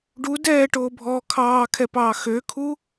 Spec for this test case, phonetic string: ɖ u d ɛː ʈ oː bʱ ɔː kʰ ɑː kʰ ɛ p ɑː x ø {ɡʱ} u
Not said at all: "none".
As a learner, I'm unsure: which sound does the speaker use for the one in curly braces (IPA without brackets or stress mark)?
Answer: kʰ